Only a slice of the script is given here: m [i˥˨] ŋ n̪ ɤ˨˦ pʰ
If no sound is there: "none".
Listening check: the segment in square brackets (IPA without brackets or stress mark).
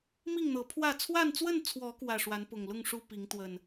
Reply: i˥˨